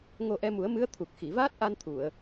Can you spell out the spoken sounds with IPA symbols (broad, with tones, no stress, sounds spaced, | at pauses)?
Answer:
ŋ o˧ ʔ ɛ˧ m u˨˩˦ ə̯ m ɨ˧˥ ə̯ t̪ʰ u˨˩ k̚ x i˨˩˨ v aː˦˥ t̚ ʔ a˧ n t̪ʰ u˨˩˨ ə̯